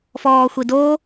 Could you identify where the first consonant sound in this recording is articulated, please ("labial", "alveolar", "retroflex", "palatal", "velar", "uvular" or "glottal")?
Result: labial